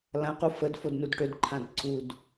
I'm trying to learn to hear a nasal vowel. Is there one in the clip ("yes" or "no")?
yes